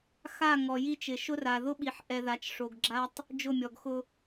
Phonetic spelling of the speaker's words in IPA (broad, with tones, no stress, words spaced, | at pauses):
xa˦˨ ŋɔ˨ji˦t͡ʃɪ˨ ʃʊ˦ra˨ ðʊ˦ɓi˨ħʔɛ˨ða˨t͡ʃ ʂo˨ɡɡ͡ǁa˦tˤ | d͡ʒʊ˦˨mʲɔ˨ɡxʊ˦